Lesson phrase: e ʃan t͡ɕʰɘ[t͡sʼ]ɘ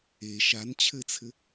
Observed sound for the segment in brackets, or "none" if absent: t͡sʰ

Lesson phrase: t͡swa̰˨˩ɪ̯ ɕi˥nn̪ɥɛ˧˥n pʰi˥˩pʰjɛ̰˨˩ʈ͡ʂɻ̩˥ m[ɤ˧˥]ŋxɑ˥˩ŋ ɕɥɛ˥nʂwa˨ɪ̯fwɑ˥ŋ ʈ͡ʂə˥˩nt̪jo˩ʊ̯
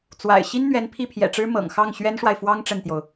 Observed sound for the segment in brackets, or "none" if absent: ɤ̰˨˩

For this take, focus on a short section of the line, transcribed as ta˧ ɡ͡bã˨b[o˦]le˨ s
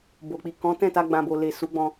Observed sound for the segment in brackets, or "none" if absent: o˨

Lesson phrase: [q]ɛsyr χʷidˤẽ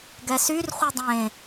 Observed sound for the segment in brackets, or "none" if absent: ɡ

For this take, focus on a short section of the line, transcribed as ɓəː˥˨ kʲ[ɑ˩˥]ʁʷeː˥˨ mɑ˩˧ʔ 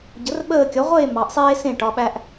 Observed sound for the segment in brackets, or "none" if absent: ɒ˩˥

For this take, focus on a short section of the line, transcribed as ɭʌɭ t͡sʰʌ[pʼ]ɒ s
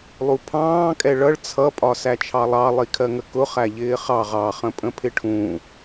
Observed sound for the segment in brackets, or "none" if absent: pʼ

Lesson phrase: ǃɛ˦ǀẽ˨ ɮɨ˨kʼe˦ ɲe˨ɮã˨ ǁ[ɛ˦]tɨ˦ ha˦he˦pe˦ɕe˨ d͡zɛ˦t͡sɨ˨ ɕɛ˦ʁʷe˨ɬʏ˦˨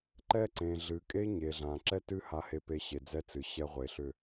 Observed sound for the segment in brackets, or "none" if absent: ɛ˦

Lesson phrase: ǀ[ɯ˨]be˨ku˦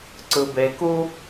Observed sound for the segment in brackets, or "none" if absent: ɯ˨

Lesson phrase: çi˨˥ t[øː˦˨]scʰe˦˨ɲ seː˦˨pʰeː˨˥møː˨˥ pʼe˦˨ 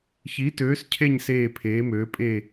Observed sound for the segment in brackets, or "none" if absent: øː˨˥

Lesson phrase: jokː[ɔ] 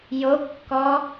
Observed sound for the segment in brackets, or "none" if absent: ɔ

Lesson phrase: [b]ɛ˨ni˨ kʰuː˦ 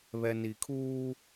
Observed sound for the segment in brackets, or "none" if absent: β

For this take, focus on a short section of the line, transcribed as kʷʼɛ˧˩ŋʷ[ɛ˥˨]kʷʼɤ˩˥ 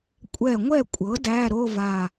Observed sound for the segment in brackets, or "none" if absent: ɛ˥˨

